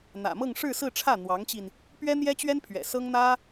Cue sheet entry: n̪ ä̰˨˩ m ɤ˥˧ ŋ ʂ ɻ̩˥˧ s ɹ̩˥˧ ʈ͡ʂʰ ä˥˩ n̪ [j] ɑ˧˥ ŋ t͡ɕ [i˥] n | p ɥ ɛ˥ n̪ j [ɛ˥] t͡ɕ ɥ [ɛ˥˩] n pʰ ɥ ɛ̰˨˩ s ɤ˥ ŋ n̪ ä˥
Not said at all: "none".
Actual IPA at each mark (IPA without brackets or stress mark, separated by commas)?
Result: w, i˧, ɛ˥, ɛ˥